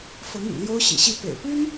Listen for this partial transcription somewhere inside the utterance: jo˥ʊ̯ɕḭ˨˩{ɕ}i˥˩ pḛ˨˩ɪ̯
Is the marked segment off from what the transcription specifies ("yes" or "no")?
no